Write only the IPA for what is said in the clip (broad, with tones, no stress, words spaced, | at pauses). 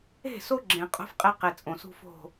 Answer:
e̤˦˨so˦ɡ͡ǁẽ˨ qʼo̤˦fqʼe˦ qe˨ t͡sʼõ˨sṳ˦fo̤˦˨